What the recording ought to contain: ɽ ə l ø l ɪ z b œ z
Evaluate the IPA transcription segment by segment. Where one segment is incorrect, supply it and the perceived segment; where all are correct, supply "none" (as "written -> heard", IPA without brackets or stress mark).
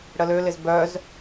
none